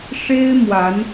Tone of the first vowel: high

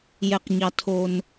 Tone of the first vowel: high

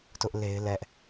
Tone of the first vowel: high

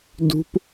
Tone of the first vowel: high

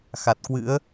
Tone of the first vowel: low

